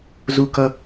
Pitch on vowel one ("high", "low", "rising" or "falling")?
high